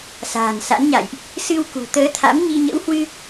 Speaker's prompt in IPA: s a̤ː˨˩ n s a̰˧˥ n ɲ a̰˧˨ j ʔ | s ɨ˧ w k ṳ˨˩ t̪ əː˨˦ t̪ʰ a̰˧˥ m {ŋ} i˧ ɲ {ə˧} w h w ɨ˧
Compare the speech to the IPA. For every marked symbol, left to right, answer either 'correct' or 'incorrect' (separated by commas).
incorrect, incorrect